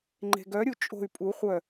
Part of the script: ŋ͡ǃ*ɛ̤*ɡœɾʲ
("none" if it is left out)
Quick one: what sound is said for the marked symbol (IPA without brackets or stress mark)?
e̤